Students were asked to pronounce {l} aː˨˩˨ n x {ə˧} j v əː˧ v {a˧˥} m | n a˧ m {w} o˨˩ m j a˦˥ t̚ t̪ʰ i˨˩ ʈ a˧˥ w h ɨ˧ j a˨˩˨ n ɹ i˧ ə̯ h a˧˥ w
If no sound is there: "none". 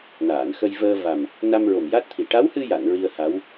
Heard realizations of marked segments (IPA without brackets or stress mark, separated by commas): n, ə˧, a˨˩, ɹ